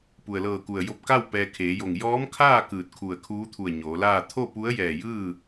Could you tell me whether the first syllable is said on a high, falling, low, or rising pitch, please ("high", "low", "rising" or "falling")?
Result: low